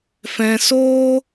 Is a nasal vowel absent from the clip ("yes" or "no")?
no